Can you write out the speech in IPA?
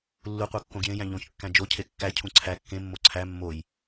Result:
lː u qʷ æ kː õ ɡ j ẽ j æ̃ ʎ õ ç kː æ̃ d͡ʒ o cʰ e kː æ cʰ ũ ǀʰ æ kː ẽ mː o ǀʰ æ mː o j

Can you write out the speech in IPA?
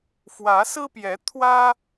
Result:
f w ä˨˦ s ɹ̩˦ p j ɛ˨˦ t̪ʰ w ä˦

